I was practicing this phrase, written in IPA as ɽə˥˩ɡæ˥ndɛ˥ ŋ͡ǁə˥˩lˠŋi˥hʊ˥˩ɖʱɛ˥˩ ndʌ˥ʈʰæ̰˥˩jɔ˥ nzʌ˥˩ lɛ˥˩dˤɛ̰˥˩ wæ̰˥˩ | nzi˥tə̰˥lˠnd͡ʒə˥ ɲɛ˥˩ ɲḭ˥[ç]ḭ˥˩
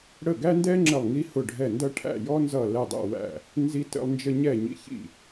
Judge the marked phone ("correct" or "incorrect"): correct